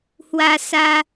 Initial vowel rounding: unrounded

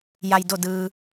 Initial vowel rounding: unrounded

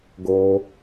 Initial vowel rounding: rounded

